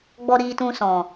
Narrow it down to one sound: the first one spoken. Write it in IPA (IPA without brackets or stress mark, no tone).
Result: ɡ͡b